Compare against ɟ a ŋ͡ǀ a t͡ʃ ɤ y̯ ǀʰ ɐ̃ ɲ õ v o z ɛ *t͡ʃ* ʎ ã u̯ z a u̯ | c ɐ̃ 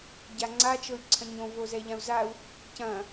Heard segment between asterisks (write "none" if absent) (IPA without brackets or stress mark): none